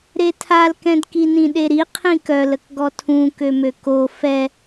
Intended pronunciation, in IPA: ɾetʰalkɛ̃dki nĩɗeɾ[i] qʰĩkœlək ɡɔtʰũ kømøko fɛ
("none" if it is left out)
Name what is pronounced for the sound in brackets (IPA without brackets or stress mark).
i